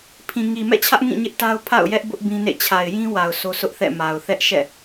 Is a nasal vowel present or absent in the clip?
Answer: present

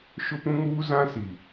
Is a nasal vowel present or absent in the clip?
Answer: present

